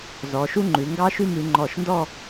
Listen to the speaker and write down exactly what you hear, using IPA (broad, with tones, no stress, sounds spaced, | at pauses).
z ɔ˩˧ ʃ u˥ ŋ͡ǃ ʉ˩˧ ŋ ɡ ɑ˥ ʃ ʉ˥˧ m ʉ˩˧ ŋ͡ǃ ɔ˧˩ ʃ n d ɔ˥˧